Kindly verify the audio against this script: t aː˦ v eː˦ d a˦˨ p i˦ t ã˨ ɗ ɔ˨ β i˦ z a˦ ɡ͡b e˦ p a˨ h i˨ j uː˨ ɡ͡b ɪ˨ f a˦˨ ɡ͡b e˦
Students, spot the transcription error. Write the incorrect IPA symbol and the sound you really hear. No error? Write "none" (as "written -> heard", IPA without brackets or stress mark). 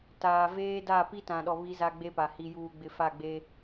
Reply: aː˦ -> aː˨